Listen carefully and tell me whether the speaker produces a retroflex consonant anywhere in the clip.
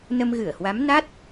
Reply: no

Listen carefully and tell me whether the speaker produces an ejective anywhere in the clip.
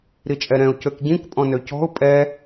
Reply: yes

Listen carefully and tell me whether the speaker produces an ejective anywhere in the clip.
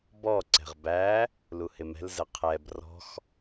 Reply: no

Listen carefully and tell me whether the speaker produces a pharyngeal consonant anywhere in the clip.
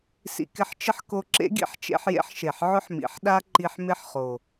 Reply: yes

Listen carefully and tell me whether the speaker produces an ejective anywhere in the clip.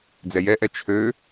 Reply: no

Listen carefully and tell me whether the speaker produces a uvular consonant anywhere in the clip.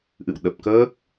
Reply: no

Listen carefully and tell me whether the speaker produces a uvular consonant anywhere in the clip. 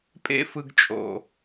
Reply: no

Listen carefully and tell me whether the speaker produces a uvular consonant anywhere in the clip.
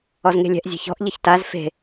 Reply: no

